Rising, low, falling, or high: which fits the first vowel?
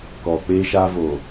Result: low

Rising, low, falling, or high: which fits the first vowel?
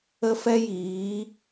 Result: high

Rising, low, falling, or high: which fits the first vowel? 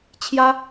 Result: high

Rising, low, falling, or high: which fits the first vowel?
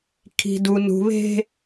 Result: high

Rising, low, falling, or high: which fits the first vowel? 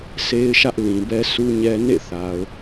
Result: high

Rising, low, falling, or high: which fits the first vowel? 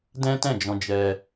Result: high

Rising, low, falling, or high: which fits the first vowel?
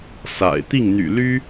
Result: low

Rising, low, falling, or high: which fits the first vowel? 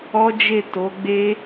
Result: high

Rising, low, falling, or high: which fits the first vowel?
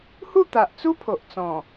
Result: falling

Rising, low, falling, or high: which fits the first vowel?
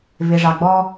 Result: low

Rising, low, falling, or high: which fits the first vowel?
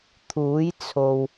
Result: rising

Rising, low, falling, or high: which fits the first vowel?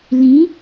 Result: rising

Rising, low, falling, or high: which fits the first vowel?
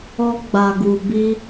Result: high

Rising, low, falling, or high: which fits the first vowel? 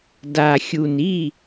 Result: low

